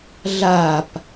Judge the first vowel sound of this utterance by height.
low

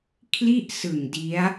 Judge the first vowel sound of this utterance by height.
high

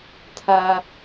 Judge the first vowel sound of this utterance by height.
low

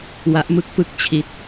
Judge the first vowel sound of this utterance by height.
low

